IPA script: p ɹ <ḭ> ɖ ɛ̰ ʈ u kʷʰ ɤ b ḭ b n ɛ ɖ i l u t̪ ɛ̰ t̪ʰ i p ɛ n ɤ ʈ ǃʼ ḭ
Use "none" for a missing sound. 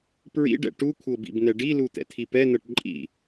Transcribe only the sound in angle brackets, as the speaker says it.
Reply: ḭ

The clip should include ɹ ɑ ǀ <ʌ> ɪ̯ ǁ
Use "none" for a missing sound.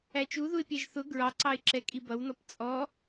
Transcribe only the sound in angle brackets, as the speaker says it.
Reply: ɑ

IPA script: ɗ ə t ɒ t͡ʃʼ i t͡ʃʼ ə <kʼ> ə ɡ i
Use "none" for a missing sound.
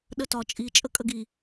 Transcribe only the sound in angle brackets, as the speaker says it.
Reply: kʼ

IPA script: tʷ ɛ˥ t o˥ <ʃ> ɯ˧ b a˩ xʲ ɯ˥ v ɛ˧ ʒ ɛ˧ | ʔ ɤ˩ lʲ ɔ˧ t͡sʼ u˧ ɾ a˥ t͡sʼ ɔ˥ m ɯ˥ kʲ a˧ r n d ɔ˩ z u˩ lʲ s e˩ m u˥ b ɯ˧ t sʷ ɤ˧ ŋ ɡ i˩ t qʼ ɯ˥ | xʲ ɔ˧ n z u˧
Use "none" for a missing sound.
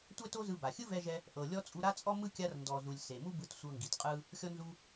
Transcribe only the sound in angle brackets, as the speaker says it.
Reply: z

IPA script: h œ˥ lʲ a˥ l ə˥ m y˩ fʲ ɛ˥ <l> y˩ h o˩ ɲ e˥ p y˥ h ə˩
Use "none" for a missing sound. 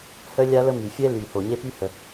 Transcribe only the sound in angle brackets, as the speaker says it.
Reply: l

